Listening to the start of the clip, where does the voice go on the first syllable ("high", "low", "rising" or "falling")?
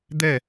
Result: falling